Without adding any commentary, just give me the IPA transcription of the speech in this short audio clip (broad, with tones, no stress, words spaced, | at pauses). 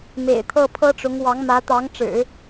mḛ˨˩ɪ̯t̪ʰɤ˥˩pʰɤ˥ʈ͡ʂʊ˧˥ŋ wɑ˧˥ŋmä˧˥t̪ɑ˧˥ŋʈ͡ʂɻ̩˨˩˦